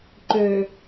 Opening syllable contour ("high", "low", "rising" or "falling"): low